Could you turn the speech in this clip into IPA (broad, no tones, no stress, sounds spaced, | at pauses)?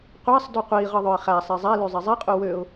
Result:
qʷ æ sˤ d y qʷ i ʁ ɯ ðˤ ø ɪ̯ χ æ sˤ e zˤ æ l y zˤ i zˤ e qʼ u w ø ʊ̯